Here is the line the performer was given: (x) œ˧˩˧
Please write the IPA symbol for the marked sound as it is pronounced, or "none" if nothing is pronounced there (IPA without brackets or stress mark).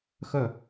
x